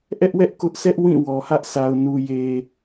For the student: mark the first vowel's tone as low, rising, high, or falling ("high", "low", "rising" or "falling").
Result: high